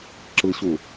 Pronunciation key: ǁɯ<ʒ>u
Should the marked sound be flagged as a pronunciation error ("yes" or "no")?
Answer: yes